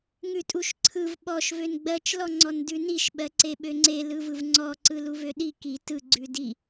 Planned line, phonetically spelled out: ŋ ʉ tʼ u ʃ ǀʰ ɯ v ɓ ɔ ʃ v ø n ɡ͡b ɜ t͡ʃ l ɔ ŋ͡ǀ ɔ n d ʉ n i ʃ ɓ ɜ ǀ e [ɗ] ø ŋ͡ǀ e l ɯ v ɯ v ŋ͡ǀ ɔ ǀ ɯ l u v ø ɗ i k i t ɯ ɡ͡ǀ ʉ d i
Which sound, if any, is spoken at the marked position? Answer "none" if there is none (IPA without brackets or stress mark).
ɓ